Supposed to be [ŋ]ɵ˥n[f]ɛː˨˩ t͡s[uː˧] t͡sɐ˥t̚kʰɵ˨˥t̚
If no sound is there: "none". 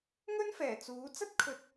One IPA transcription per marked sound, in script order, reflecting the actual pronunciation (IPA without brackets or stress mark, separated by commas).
ŋ, f, uː˨˥